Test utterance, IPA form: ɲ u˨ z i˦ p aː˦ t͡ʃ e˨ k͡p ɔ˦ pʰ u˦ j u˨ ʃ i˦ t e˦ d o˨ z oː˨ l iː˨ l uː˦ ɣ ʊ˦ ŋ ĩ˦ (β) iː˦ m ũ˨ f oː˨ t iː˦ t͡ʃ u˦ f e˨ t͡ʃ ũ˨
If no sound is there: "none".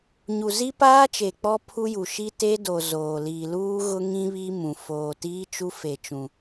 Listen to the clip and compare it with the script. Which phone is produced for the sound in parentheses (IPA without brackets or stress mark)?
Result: β